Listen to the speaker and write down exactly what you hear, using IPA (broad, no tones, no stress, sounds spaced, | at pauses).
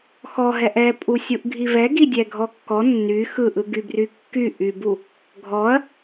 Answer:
x ɔ ɦ ɛ ʔ ɛ pʼ u sʲ u ʔ ɡʱ i v ɛ ɡ i dʲ ɛ ɡʱ ɔ kː ɔ nː y x ɯ ʔ ɯ ɡ y b r y kː y ʔ y b u | ɡʱ ɔ ɐ̯